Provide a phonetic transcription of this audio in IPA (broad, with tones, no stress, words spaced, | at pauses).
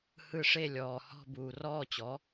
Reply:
hɯ˦ʂe˥˨lʲɔː˨ hɔ̤˥˨buː˨rɔː˥˨t͡ɕɔ˩˥